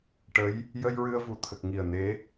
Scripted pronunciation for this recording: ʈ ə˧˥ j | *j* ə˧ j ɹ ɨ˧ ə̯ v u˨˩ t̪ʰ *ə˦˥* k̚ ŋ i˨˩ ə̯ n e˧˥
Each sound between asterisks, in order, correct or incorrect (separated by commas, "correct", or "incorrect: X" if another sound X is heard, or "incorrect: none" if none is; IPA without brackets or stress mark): correct, incorrect: ə˨˩